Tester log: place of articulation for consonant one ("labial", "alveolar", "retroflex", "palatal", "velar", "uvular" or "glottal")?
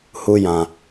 glottal